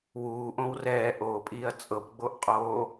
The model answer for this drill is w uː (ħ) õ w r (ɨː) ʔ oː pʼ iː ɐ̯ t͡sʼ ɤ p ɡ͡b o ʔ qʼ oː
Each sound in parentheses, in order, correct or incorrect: incorrect, incorrect

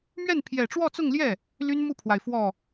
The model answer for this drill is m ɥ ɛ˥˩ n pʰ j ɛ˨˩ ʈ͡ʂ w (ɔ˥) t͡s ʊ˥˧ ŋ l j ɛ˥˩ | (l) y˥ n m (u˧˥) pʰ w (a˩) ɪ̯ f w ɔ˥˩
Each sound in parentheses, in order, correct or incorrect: incorrect, correct, incorrect, correct

